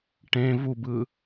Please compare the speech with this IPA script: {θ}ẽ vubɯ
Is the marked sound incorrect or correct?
incorrect